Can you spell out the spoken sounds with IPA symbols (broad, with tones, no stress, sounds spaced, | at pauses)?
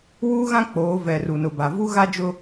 w uː˦ ɣ ã˦ k͡p oː˨˦ v ɛ˨ r u˨ n ʊ˨ b a˨ v u˦ ɣ a˦ d͡ʒ ʊ˦